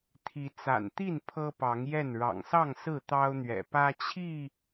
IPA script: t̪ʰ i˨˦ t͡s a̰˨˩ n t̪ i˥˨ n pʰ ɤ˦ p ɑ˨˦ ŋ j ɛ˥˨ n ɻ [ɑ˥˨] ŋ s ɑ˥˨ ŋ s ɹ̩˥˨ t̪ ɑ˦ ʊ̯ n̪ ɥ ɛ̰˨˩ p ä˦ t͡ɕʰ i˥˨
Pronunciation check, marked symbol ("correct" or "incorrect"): incorrect